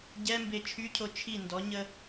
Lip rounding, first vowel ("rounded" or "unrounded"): unrounded